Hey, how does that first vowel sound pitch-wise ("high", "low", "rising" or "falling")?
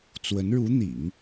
rising